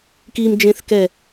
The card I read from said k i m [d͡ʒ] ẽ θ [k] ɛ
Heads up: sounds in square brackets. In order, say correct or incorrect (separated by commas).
correct, correct